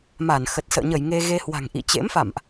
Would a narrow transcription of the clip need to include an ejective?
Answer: no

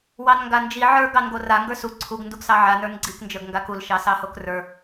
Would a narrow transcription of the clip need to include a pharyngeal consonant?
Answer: yes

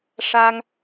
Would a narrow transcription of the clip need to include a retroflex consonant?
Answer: yes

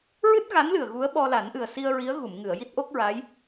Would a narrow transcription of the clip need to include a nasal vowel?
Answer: no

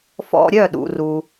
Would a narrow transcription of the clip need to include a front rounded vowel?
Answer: yes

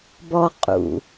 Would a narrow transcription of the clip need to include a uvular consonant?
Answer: yes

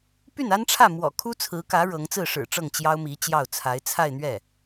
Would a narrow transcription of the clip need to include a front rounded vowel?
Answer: yes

